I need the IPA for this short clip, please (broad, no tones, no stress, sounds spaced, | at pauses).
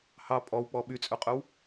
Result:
h ɑ pʼ ɔ w k͡p ɔ ɓ y t͡sʼ œ qʼ œ w